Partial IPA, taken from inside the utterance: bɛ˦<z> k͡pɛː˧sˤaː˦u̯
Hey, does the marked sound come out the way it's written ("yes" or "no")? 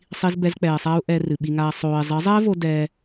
yes